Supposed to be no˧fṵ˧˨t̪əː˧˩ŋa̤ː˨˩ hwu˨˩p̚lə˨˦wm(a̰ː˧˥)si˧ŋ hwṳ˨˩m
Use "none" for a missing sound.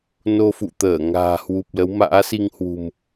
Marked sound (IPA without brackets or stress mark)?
a̰ː˧˥